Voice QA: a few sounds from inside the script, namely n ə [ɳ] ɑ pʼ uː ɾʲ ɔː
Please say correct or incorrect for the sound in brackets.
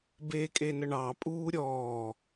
correct